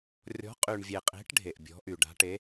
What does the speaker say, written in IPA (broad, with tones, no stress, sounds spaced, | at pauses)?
rʲ ɔ̤˨˥ qʼ y˨ ɳ vʲ e˨ qʼ e̤˨˥ ʈ ɖʱ e˨ ʔ bʲ ɔ̤˨˥ ʔ y˨ ɖ a̤˨˥ ʈ e˨˥